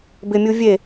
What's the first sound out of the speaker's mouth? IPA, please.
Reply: b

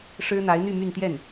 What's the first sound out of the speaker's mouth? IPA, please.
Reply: ʂ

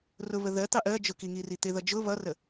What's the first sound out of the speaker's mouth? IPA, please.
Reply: r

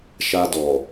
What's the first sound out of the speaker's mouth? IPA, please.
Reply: ʃ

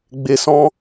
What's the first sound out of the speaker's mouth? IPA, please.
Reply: ɡ͡b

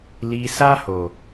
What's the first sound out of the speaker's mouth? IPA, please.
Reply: l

